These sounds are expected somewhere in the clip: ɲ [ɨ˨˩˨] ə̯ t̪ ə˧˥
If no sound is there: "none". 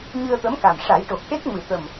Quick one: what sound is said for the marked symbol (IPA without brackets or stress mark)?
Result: ɨ˧